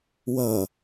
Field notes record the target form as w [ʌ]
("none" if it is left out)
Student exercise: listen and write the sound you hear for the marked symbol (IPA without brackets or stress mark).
ʌ